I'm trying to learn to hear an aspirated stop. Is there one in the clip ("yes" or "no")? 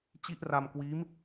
no